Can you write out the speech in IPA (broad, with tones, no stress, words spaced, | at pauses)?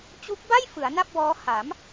t͡ɕu˦˥k̚ba˥˩j fɯ˩˦a̯na˥˩p̚wɔː˦˥ ha˩˦m